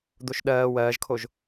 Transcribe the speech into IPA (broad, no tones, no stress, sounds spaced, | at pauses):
d̪ o ʃ ɗ ɜː w ɜː ʒ kʰ o ʒ